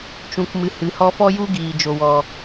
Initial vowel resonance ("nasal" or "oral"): nasal